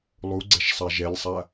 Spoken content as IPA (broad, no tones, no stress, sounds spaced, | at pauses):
lˠ u ɡ͡ǀ ɛ ʃ sˤ a ʒ ɛ lʲ sˤ a